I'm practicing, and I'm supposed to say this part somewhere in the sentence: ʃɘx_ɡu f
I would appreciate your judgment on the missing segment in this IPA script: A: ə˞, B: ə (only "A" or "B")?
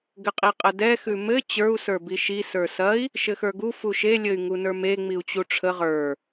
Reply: A